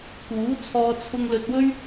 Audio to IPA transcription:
k uː˨˥ t͡sʰ ɔː˧ t͡sʰ ʊ˧ ŋ l ɵ˧ t̚ w ɵ˥ ɥ

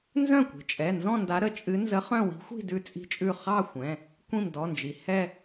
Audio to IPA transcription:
n z œ̃˥˩ kʷ i̤˩ t͡ʃʼ ɛ˩˧˩ n z ɔ̃˥˧ n d a˧˥ ɾ ə˧˥ t͡ʃʼ ɨ˧˥ n z ə˧˥ χ œ̃˥˧ w i̤˧˥ xʷ i̤˥˧ d ʉ˥˧ t͡sʼ i̤˥˧ t͡ʃʼ ʉ˥˩ χ ɑ˥˧ xʷ ɛ̃˩˧˩ | kʷ ĩ˥˩ m d ɔ˩˧˩ n d͡ʒ i˩ h ɛ˥˧

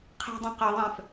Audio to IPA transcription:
qʰ ɛ̤ dˤ ẽ q ʌ ðˤ ɛ̃ f

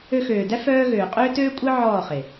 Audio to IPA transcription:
ø˧ x øː˨ d æ˦ f œː˦ ɣ øː˨ qʼ øː˦ t øː˦ kʷʼ ɛ˦ ʕ ɔː˦˨ χ e˨

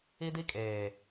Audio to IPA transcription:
i˦ d i˦ kʼ eː˨

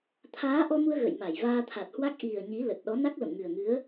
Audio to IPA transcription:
t̪ʰ aː˨˦ ʔ ɔ˧ m u˧ ə̯ ɣ ə̰˧˨ j m a˧˩ j v aː˧ t̪ʰ a˨˩ t̚ h w a˦˥ k̚ ʔ i˨˩ ə̯ ɲ i˨˦ l ə˨˩ t̚ ɗ ɔ˨˦ n a˦˥ k̚ l ə̰˧˨ m ŋ ɨ˨˩ ə̯ ŋ ɨ˨˦ ə̯

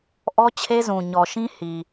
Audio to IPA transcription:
ʔ ɔ˦ t͡ɕʰ e˦ z ũ˨ ɲ ɔ˨ ʃ ĩ˦ h i˨

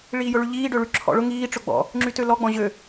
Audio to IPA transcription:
ɭ iː j ʊ ɭ y ʎ iː ɖ ø ɭ y ǁʰ ɔ̰ ɭ ʊ ŋ iː ʈ͡ʂ ʊ ɡ͡b ɔ̰ | ŋ͡ǁ y t ø l ɔ ɡ͡b ɔ̃ ʑ ø

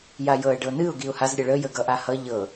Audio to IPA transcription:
j a j ɤ ə̯ ɖ ɤ n ɨ ʊ̯ ɡ i ʊ̯ h a z ɾʲ ə ɭ ə j ə ɡ ʌ ʔ a h ʌ ʎ ɤ

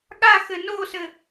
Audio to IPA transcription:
ɠ a x ɘ n o s ɘ

